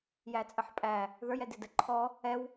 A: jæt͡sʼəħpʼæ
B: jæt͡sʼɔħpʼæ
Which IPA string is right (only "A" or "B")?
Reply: A